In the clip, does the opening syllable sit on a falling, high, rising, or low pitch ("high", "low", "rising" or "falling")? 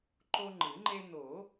high